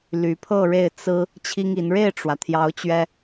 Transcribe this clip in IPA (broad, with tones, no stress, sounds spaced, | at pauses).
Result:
l y˧˥ pʰ ɤ˥˧ ɻ e˥˩ ɪ̯ t͡s ɹ̩˥ | t͡ɕʰ i˥ ŋ i˧˥ n ɻ e˥˩ ɪ̯ ʈ͡ʂ w ä˩ t̪ʰ j ɑ˧˥ ʊ̯ t͡ɕ ɥ ɛ˥